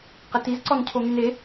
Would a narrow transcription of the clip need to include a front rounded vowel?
yes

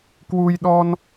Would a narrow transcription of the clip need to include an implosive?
yes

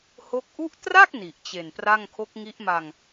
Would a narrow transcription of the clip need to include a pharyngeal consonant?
no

